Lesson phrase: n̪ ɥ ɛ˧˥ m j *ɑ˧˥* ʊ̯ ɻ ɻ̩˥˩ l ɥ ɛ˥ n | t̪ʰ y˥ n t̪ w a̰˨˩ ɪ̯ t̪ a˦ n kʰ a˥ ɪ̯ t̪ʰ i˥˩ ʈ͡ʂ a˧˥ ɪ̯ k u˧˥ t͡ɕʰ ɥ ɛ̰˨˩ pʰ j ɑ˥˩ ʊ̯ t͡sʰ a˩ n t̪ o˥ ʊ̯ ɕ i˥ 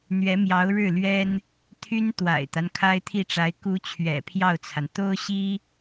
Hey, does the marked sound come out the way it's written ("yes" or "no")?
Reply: yes